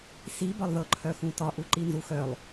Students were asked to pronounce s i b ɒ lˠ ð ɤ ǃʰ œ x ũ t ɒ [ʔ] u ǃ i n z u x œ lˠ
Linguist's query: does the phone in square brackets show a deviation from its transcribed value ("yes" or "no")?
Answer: no